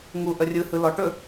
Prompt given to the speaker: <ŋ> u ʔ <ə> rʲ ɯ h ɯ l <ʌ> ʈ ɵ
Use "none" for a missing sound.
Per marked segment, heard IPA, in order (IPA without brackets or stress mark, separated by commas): ŋ, ə, ɔ